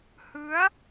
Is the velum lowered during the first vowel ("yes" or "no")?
no